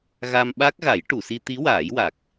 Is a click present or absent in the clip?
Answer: absent